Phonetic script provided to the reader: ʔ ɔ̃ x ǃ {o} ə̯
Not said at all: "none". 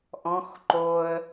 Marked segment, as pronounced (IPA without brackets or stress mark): o